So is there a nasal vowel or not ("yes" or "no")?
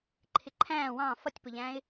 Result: yes